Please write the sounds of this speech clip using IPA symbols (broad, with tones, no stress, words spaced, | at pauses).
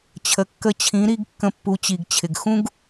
t͡ɕʰə˨kːə˧t͡ɕʰĩ˨˦ ɾi˦ɡ kːə̃˧pːu˨˦t͡ɕi˨ɡt͡ɕʰɪ˨ɡ xũ˦ɡ